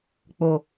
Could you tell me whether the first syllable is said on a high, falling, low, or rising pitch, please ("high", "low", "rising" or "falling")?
low